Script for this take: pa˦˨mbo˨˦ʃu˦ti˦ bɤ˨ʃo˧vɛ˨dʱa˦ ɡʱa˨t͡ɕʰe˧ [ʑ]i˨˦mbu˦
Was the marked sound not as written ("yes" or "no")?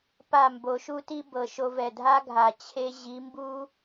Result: no